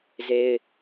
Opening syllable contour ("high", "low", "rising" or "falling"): high